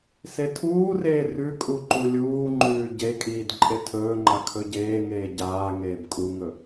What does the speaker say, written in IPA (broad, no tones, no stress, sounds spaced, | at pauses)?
s e tʰ uː r eː r ʉ kʼ u ǃ u lʲ uː ŋ͡ǃ ʉː ɟ e kʼ iː d ǃʼ e tʰ ɵː ŋ͡ǃ a kʰ ɵ ɟ eː ŋ eː ɟ aː ŋ eː b kʼ u ŋ ɵ